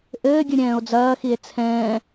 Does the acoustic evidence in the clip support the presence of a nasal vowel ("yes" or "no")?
yes